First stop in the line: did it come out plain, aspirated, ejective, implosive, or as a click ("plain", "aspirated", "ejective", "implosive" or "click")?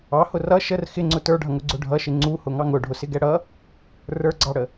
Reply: click